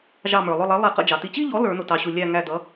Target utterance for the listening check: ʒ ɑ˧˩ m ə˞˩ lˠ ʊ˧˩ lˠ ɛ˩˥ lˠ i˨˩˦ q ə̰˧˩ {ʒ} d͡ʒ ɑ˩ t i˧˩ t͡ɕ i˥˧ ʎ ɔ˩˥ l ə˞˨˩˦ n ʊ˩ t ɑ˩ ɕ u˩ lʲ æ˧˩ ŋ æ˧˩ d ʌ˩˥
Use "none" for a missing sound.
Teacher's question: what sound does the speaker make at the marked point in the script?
none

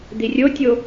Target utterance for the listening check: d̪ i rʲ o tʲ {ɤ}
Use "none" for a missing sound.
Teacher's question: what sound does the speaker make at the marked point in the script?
o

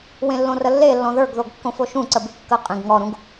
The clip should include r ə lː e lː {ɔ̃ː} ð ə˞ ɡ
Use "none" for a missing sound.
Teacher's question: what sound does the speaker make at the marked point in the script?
ɔ̃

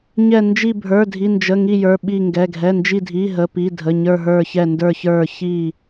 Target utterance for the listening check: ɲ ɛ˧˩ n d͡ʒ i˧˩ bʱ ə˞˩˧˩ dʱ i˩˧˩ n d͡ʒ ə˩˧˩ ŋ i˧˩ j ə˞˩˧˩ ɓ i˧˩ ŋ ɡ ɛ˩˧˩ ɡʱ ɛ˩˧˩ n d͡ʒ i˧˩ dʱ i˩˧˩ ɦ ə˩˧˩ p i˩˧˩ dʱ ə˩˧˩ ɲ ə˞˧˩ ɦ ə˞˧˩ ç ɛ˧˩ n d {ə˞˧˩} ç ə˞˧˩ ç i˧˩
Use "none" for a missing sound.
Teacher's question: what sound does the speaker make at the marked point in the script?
ə˞˧˩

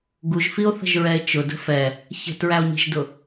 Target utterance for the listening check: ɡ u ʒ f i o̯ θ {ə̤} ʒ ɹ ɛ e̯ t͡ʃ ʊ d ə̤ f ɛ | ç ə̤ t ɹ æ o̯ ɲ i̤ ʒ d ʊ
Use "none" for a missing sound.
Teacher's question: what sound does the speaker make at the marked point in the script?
ə̤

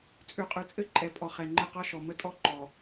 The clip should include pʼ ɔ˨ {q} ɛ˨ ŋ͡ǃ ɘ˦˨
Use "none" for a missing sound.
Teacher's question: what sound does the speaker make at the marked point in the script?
χ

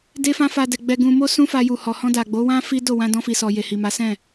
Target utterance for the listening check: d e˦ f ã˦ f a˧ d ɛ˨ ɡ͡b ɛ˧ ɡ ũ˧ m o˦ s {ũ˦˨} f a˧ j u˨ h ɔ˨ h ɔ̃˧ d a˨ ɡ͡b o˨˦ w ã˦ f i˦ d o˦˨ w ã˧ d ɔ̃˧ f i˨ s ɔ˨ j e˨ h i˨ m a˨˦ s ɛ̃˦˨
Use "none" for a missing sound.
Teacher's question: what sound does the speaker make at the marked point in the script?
ũ˦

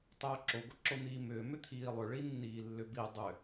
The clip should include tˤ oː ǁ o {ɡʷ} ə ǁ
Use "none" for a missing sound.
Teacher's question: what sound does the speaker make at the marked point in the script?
ɡʷ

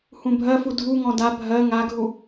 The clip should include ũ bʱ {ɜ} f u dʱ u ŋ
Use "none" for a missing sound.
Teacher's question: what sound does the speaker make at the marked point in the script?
ɜ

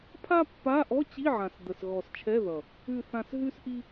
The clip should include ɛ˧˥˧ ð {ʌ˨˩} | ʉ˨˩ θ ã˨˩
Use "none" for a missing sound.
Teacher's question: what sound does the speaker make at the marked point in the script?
ʌ˨˩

